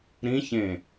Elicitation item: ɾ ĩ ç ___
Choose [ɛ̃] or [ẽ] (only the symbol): ẽ